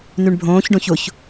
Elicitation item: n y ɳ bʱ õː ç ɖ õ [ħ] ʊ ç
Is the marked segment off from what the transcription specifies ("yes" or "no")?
yes